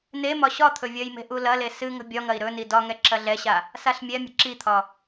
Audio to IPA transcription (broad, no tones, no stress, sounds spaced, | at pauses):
n e m ɒ ɕ ɒ t̪ʰ ɵ vʲ ɐ j m e̤ ʔ u l ɐ l e s ɨ ŋ ə̤ bʲ ɒ ŋ ɐ i̯ ɾ ɵ n i d ɒ ŋ ɛ ǁ ɐ ɮ ɛ ɕ a | s a ɬ mʲ ɛ mʲ ə̤ ǁ i t̪ʰ ɒ